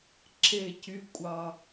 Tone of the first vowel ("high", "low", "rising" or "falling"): falling